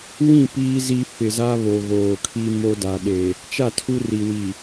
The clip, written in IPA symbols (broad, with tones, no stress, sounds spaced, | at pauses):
w ĩ˦˨ p iː˦ z i˦ f ɪ˨ z a˦ β o˨ ɣ oː˨ kʰ i˦ m o˦ d a˨ ɗ e˨ | t͡ʃ a˦˨ tʰ u˦ r i˨ w i˨